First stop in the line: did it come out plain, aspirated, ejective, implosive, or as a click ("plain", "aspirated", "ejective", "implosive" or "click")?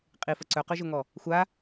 ejective